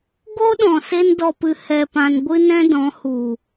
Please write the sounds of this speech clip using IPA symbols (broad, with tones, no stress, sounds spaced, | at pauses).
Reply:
ɡ o˦ ɗ ɔ̃˨ s e˦ n d ɔ˧ p ɨ˧ h ɛ˧ p ã˧ n ɡʷ ɨ˦ n ɛ̃˦ d ɔ̃˨˦ h u˨